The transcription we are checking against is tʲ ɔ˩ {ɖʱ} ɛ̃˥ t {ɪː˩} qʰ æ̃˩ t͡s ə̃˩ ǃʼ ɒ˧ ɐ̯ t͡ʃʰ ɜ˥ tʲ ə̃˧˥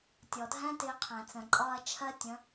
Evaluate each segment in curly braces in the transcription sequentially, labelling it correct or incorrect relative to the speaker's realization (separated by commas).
incorrect, incorrect